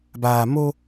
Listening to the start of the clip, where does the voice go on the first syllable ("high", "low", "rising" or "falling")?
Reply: low